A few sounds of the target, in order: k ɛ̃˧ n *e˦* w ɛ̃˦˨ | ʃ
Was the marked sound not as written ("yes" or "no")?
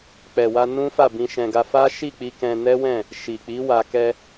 yes